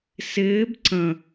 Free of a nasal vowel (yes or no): no